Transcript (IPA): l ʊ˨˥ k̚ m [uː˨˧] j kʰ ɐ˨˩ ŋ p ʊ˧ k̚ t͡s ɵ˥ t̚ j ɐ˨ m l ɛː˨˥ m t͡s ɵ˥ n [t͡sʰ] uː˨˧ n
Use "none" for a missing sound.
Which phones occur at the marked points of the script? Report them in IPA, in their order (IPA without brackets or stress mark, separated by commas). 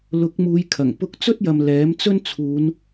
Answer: uː˨˧, t͡sʰ